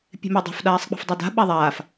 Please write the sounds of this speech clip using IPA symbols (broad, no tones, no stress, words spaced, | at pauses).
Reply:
pʲe̤medˤe̤f ɗaːsˤk͡pa̤fdˤɑda̤ ɓaðˤaːf